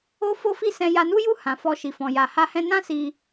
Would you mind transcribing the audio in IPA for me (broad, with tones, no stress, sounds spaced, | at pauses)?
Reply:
o˦ f o˦ f i˦˨ s ɛ̃˧ j a˧ n u˦ j u˦˨ h ã˨ f ɔ˧ ʃ i˨ f ɔ̃˨ j a˨ h a˧ h ɛ̃˧ n ã˦ s i˧